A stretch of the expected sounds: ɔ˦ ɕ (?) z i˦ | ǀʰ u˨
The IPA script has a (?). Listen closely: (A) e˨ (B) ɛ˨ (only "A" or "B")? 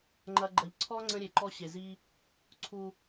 A